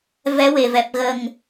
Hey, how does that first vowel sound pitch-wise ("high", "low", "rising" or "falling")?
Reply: rising